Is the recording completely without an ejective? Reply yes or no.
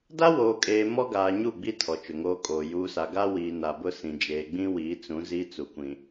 no